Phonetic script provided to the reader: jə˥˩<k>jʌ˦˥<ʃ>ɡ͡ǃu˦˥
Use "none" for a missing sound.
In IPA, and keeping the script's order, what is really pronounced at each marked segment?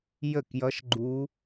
k, ʃ

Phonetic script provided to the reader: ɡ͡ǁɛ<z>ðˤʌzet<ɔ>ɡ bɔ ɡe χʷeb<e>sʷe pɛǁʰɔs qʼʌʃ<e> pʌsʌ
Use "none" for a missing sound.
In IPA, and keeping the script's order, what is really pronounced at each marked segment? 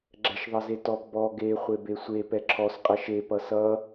ʃ, ɔ, e, e

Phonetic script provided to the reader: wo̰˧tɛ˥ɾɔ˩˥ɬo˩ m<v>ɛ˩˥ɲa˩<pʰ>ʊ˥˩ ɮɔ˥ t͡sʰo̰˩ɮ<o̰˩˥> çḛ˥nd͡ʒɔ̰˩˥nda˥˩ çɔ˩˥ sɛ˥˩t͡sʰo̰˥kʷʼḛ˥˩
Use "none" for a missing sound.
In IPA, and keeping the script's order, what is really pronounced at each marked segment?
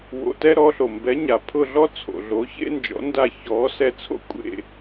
b, pʰ, o˩˥

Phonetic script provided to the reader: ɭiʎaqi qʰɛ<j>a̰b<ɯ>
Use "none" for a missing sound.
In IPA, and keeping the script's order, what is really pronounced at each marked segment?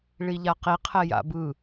j, ɯ

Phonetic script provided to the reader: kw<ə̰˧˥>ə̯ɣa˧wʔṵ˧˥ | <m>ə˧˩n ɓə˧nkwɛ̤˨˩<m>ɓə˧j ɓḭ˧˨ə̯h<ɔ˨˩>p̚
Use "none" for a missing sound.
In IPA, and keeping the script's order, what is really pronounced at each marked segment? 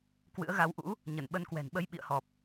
ɨ̰˧˥, ɲ, n, ɔ˨˩

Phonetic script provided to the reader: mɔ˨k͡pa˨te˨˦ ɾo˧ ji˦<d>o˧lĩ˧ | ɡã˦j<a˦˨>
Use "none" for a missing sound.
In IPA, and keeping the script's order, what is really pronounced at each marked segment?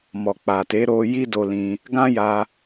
d, a˧

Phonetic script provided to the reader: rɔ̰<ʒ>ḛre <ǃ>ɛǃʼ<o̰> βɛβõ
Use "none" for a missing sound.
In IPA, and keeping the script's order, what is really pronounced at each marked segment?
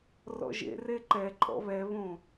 ʒ, ǃ, ɔ̰

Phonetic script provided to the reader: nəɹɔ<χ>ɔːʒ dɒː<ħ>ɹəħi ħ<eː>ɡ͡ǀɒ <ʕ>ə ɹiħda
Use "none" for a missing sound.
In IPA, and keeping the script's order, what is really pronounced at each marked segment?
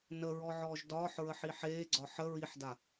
ʕ, ħ, eː, ħ

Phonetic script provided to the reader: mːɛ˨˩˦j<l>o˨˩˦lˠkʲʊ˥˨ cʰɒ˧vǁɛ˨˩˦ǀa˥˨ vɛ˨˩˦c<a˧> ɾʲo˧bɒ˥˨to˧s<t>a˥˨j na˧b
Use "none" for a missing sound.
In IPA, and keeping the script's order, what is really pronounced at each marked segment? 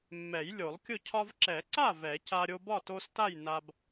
lʲ, a˧, t

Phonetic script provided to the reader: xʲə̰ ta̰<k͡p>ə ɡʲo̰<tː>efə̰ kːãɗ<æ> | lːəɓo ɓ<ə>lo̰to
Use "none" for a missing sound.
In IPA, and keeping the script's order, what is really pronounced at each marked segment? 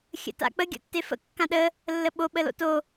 k͡p, tː, ə, ə

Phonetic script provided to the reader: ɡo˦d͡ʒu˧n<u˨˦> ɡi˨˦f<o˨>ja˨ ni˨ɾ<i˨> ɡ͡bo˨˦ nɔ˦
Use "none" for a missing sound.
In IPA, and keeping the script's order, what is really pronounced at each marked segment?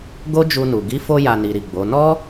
u˨, o˧, i˨

